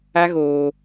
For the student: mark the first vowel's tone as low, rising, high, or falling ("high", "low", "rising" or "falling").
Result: high